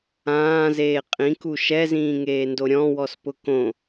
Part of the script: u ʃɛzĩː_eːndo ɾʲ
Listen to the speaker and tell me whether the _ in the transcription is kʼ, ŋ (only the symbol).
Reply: ŋ